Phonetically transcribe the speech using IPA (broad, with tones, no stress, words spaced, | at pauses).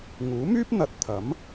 ŋuː˨˥myː˥p̚n̪ɐ˨t̚ t̪ʰɐ˨˥m